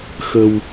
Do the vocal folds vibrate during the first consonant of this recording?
no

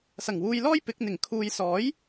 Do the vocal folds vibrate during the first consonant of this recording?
no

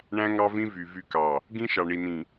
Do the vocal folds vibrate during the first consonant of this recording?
yes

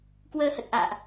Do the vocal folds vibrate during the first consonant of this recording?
no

